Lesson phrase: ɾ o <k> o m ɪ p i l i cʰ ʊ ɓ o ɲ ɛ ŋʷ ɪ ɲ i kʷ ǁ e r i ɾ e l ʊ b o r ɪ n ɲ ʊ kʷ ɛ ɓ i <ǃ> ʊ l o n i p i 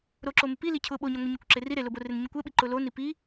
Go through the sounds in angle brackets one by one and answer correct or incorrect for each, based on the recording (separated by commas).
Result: incorrect, correct